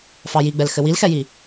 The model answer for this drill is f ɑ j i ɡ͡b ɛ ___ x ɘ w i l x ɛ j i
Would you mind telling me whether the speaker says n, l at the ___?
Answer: l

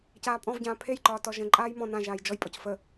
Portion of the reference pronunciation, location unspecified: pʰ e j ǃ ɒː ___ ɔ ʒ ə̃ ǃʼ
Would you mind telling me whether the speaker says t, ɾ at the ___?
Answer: t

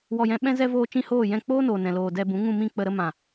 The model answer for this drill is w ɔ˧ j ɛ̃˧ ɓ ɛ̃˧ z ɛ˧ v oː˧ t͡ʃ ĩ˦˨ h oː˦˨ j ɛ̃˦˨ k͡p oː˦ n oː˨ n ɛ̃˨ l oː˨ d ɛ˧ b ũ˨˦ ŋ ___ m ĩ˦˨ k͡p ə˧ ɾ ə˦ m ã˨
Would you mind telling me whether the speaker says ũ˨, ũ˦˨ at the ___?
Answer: ũ˦˨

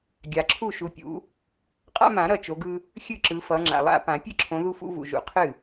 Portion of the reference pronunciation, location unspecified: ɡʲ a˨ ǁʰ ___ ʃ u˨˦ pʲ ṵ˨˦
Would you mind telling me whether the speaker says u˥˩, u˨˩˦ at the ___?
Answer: u˥˩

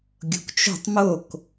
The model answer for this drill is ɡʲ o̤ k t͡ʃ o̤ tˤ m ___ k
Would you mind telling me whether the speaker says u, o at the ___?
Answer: o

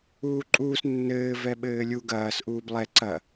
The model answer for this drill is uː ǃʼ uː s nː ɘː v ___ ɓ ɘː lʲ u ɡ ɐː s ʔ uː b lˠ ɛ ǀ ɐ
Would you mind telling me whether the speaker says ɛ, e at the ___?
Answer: ɛ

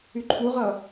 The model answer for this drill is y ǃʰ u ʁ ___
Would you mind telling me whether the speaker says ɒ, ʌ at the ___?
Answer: ʌ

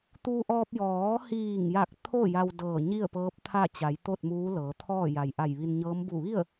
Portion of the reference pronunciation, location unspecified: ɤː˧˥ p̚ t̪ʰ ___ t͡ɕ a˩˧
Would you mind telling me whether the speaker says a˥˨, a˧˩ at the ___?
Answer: a˥˨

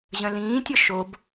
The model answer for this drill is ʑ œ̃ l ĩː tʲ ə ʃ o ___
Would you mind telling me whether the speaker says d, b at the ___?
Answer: b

